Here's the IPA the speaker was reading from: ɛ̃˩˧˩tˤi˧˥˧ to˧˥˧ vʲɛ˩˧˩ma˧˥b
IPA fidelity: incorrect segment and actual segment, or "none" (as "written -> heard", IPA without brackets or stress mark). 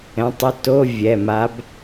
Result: none